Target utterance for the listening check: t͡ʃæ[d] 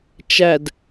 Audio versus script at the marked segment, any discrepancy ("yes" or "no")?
no